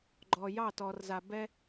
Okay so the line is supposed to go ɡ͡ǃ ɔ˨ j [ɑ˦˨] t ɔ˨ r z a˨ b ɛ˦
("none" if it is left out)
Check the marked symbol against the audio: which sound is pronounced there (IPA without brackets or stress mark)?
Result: ɑ˦˨